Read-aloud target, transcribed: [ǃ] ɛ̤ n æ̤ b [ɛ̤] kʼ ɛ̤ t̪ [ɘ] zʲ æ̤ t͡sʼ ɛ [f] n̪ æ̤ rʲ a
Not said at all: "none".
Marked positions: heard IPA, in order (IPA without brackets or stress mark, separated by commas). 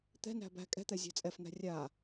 t̪, æ̤, ɛ, f